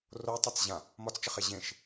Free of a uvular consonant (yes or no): no